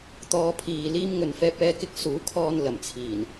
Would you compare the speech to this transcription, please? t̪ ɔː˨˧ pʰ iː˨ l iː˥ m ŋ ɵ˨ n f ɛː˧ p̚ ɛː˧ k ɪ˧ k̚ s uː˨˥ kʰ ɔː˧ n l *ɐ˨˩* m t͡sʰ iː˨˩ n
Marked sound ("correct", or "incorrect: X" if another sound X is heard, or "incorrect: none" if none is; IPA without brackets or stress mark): correct